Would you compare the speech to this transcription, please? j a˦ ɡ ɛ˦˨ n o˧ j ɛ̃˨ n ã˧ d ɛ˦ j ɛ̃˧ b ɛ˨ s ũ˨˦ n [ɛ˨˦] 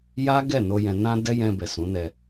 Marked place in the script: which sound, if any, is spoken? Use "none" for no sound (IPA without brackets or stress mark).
ɛ˧